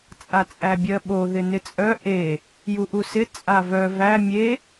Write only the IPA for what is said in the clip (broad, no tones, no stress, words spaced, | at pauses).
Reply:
t͡sʼat͡sʼæbʲɜɓo ðɪnɪt͡sʼœ ʔe | juʔusɪ t͡sʼavœ væ mʲe